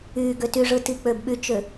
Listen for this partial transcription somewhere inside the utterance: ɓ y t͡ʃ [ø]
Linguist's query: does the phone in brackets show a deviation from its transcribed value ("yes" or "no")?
no